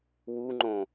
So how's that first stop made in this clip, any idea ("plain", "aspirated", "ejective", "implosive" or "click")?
click